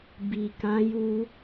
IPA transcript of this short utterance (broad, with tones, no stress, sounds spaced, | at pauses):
b i˨ k ã˨˦ j u˧